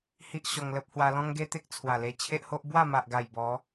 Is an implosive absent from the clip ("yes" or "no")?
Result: yes